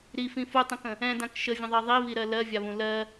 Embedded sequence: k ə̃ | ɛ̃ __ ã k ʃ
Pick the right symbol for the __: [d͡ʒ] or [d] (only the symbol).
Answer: d